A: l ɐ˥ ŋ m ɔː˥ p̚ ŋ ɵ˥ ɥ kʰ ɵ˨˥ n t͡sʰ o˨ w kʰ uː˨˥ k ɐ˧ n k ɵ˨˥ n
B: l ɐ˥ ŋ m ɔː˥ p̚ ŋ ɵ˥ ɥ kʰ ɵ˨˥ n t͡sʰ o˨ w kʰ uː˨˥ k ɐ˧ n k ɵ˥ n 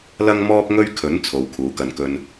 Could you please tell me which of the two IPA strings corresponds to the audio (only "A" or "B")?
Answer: B